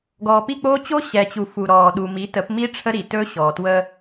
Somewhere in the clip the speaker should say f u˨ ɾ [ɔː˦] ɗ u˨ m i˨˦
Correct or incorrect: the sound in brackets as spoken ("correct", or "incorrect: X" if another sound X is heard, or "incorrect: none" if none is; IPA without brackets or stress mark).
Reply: incorrect: ɔː˨